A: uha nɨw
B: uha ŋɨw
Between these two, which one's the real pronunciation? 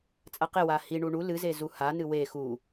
A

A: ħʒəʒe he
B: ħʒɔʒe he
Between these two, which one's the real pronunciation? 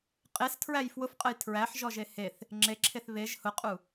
B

